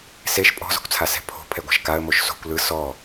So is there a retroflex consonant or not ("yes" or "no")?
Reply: no